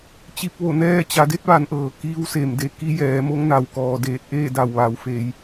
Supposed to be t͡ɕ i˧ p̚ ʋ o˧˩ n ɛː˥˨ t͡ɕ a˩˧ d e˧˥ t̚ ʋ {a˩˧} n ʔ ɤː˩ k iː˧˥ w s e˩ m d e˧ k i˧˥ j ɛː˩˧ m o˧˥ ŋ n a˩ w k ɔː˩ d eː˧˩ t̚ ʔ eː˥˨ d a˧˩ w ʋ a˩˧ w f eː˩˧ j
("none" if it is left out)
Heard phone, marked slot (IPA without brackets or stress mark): a˩˧